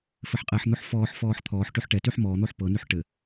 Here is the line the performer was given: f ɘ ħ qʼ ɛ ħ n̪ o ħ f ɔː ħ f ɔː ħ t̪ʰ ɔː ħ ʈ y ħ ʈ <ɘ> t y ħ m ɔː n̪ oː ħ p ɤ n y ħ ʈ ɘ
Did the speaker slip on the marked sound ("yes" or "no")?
yes